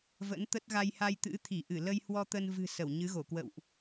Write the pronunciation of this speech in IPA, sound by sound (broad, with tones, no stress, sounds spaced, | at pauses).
v ə̰˧˥ n t̪ ə˦˥ t̚ ɣ a˧ j h a˧ j t̪ ɨ̰˧˥ t̪ʰ i˧˩ ʔ ɨ˧˩ l ə˧ j h w ɔ˧ t̪ ə˧ n v ɨ̤˨˩ s ə˧˩ w ɲ ɨ˨˦ ɣ o˧˩ k w ə̰˧˨ w ʔ